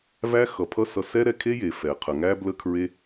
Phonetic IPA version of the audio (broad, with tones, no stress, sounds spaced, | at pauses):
v æ˦ x ʌ˨ pʰ ʌ˦ s ʌ˧ s ɛ˦ ɾ ɛ˧ kʰ e˦ j e˨ f ɛ˨ qʰ ə˨ ŋ æ˦ b l ə˦ kʰ ɹ e˦